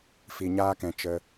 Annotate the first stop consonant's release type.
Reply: plain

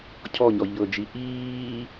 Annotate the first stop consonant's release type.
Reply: aspirated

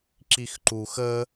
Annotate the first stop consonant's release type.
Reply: click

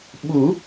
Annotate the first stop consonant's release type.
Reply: implosive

